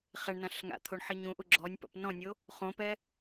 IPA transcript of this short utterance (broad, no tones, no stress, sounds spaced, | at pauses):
χ ɛ ɳ n ã ɬ ŋ a̰ t̪ʰ o ɳ ħ i ɲ ũ ʔ u ɡ͡ǁ ɔ nʲ p ɔ̰ p n ɔ̃ nʲ o | χ õ p ɛ